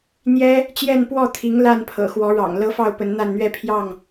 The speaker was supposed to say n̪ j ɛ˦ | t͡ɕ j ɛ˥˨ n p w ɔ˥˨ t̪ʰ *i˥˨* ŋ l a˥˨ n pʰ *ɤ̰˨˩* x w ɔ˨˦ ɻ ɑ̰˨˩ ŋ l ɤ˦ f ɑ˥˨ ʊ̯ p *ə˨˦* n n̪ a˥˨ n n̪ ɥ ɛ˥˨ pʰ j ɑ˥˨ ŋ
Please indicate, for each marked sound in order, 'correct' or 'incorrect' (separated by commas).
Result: incorrect, correct, correct